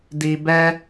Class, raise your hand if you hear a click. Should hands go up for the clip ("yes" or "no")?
no